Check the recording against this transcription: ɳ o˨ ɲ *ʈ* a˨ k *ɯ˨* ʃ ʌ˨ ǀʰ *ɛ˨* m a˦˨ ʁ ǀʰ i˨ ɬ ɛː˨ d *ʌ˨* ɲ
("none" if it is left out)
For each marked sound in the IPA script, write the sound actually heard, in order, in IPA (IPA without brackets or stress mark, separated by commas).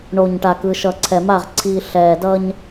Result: ʈ, ɯ˨, ɛ˨, ʌ˦